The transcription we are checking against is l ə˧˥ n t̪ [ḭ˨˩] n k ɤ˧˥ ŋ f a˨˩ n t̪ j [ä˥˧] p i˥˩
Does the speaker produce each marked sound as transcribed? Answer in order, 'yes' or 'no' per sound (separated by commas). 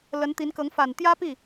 no, no